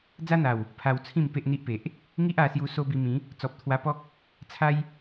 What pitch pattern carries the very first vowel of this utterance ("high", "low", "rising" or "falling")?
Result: high